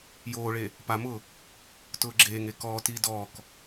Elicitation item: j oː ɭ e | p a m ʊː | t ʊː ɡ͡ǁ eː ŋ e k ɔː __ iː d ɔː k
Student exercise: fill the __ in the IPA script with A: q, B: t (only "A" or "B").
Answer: B